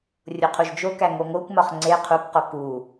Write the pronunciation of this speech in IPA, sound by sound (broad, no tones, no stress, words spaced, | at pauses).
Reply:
rʲoqʰuʒd͡ʒokæ ŋoŋokʷmɒχ ŋ͡ǀe qʰukqo ku